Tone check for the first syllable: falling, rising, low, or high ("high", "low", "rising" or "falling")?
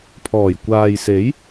low